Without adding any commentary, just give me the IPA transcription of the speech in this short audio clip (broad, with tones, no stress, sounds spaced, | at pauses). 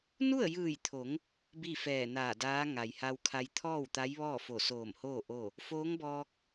n u˥˨ ə̯ j ɯː˧˩ j t̪ʰ o˩˧ ŋ | b i˥˨ f ɛː˧˩ n aː˧˩ d aː˧˥ ŋ a˩ j h a˧ w kʰ a˧ j t̪ʰ ɔː˥˨ w t̪ a˧˥ j ʋ ɔː˥˨ f o˧˩ s oː˧˩ m h oː˥˨ ʔ o˥˨ | f oː˧˥ ŋ b ɔː˧ k̚